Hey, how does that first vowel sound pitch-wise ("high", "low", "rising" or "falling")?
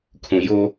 low